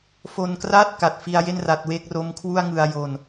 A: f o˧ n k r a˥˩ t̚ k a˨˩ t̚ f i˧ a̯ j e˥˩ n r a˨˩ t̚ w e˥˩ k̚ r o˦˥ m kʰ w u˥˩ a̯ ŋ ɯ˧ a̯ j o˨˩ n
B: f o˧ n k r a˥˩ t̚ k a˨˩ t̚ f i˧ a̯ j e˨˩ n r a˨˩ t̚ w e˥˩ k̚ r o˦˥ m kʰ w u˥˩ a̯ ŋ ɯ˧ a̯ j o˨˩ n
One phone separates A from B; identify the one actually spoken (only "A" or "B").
A